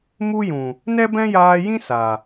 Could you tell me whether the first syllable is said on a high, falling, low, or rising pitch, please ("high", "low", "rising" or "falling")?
high